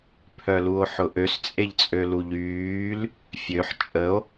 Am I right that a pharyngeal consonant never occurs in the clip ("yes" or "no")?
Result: no